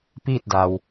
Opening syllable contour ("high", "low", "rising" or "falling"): falling